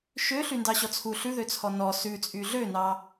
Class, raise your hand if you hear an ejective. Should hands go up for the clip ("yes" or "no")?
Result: yes